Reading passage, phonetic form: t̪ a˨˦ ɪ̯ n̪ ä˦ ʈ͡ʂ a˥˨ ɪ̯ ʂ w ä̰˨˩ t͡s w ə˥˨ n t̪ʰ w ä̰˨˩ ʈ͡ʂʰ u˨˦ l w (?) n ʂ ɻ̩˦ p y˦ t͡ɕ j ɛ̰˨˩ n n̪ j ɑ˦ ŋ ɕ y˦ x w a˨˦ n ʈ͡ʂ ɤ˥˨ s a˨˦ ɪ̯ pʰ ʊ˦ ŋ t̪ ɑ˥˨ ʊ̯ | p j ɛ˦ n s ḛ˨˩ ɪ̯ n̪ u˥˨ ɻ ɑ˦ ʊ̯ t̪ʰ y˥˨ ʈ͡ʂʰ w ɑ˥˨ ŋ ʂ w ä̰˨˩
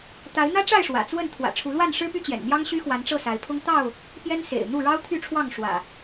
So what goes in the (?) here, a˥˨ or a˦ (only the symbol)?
a˥˨